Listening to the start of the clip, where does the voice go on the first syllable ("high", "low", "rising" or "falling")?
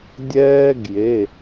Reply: high